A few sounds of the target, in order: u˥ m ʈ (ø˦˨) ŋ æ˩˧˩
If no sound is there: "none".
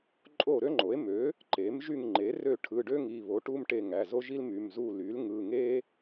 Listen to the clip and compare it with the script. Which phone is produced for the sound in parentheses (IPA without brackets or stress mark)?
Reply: e˦˨